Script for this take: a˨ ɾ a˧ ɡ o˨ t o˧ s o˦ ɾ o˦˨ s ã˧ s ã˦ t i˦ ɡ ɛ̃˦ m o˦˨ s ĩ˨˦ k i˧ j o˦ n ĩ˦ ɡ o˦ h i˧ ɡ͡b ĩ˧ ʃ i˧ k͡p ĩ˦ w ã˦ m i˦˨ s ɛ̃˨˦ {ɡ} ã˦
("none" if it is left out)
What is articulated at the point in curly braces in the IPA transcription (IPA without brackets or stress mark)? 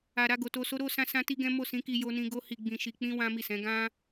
ɡ